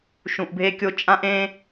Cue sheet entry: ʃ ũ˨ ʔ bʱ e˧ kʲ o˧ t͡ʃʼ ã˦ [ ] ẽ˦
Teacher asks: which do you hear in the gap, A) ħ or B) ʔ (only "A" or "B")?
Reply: B